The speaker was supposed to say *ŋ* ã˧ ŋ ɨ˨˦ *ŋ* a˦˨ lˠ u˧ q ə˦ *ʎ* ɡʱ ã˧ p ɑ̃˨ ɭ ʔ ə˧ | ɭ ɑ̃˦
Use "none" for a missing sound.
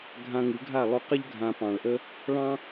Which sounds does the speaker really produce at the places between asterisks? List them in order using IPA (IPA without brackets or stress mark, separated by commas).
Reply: ɡʱ, ɡʱ, ʎ